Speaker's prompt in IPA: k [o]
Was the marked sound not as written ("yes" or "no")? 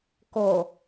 no